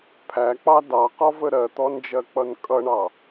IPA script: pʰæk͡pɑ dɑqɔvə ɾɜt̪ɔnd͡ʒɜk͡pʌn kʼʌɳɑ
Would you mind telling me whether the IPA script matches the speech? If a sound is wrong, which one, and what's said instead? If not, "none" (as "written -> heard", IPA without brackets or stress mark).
none